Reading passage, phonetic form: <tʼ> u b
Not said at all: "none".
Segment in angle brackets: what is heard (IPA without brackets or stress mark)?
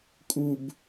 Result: kʼ